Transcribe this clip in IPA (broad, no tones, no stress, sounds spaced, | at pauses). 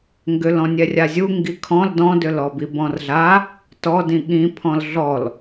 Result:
ŋ ɡ ʏ l ɔ̃ nʲ ɛ rʲ a zʲ u ŋ ɡ i kʰ ɔ̃ l d ɔ̃ d ʏ l ɔ b i b ɔ̃ r ɮ a | t ɔ d ĩ ɠ ĩ pʰ ɔ̃ l ɮ ɔ l